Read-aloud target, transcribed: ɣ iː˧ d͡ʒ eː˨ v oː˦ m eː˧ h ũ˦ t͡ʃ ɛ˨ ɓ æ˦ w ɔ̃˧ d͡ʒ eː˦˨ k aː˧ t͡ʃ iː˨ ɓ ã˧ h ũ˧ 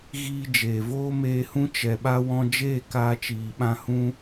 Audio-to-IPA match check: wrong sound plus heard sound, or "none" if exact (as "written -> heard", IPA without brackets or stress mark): æ˦ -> a˦